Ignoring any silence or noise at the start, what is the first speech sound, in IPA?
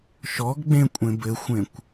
ʃ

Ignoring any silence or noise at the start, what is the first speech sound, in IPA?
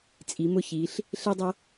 t͡sʼ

